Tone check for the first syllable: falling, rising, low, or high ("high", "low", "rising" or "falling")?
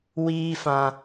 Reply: high